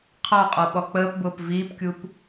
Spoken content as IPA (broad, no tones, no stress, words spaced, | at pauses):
qʰɑqʼɔɓɔ k͡pəːpbʊːp viːpkʲup